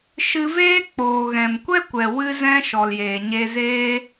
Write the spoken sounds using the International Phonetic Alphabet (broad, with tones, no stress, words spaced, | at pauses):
ʃɨ˧veː˦ k͡poː˨ɣɛ̃˨mkʷɛ˦kʷɛ˨ wɨ˦zɛ̃˦ ʃɔ˨ljeː˨ɲe˧zeː˦